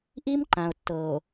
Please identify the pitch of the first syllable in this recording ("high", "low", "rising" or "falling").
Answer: high